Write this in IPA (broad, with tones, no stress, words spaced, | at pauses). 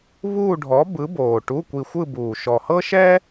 βuː˥˧ɖʱɔ˨˥ bɯ˨˥boː˨˩ ʈu˧˥˧kʷi˧xʷɯ˥˧buː˨˩ ʃɔ˨˩hɤ˥ʃɛ˥